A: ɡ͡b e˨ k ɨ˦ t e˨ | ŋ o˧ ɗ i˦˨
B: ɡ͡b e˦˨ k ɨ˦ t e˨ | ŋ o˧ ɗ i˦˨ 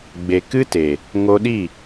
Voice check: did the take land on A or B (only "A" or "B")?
A